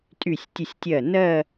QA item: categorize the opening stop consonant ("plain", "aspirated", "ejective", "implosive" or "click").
ejective